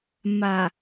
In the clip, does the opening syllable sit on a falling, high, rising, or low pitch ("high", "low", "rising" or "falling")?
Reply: low